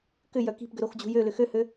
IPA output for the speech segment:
k ʏ j œ k i̤ p ɡ ʏ ɾ o x d͡ʑ ṳ j ø l ʏ x ø h ø

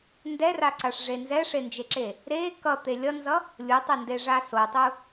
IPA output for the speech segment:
n d ɛ r a ǀ a ʂ ʐ e n z ɛ ʂ e n d͡ʒ e ǁ e | ɾ e k ʌ t̪ e lʲ ʌ n z ʌ | lʲ u tˤ ɛ n d e ʐ a s o tˤ u

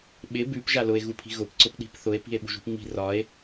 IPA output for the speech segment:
ɓ ɪ b ʉ p ʒ a l ʊ e̯ ɣ u pʰ i̤ ɣ ʊ p ǀ ʊ p ɗ i̤ p θ ʊ e̯ p i̤ e̯ ɓ ṳ ʒ ṳ p ŋ͡m i̤ r ɒ e̯

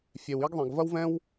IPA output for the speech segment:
fʲ e˩ w i˥ ɡ ðˤ ɛ̃˩ ɡ v ɐ˥ w v ɛ̃˥ w

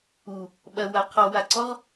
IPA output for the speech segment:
u | ɓ ɐ w a qʰ ɔ w a ǀ ɔ ʁ

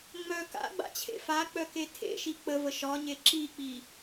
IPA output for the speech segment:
ŋ͡m œ k a̰ ɡ͡b a̰ t͡ɕʰ ḛ f a k͡p œ k e tʰ ḛ ʃ i k͡p ə v ə ʃ ɒ ɲ e ǁ i k͡p i

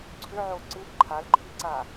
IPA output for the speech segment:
ǀʰ ʏ ʕ o ǀ ɨ p ǃʰ a l ǃʰ i ǀ a

